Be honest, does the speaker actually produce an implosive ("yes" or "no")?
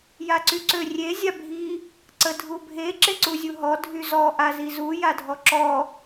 no